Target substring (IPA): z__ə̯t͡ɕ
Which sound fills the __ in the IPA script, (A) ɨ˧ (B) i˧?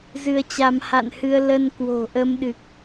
A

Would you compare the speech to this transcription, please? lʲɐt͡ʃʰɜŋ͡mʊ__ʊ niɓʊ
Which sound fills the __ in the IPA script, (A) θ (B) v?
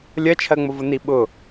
B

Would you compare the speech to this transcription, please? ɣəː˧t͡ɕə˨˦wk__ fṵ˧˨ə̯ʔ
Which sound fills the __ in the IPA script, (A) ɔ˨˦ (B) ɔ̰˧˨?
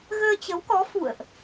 A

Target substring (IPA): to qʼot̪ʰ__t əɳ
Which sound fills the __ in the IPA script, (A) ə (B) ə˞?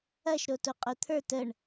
B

